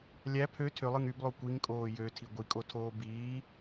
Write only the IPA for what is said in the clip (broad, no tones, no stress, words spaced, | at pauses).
lʲæ pʰø tʰølˠɯŋ yblˠo kʷiŋkʼoː jøtʰi ɡʷikʼotʰoː biː